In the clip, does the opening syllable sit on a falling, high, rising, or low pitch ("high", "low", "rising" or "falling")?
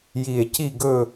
low